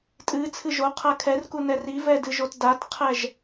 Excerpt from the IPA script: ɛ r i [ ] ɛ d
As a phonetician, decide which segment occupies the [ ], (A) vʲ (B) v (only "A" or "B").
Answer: B